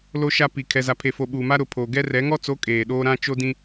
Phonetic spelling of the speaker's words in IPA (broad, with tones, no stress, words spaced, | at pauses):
lo˦ʃa˦ pi˨ kʰɛ˨za˨pʰe˨fo˨ ɓuː˨ma˦ ɾʊ˨ pʰoː˨ɡɛ˦rɛ˨˦ ŋɔ˦t͡so˨˦ kʼeː˨ɗoː˦ ɾã˦ t͡ʃo˦dĩ˦